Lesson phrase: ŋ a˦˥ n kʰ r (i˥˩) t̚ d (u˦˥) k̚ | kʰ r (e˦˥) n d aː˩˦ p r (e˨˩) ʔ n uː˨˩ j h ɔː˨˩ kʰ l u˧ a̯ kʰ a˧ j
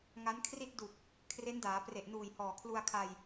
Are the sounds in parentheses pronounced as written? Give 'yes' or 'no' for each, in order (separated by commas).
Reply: yes, no, yes, yes